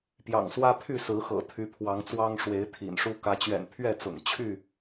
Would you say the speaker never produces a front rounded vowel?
no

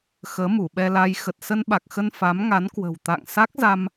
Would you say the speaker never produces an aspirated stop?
yes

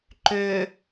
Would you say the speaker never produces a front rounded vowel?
no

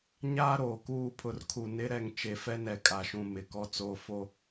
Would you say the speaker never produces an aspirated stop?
no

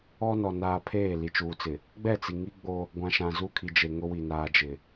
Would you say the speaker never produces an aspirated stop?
no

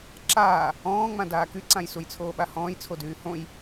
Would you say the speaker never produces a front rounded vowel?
no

